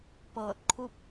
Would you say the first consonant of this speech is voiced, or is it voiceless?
voiceless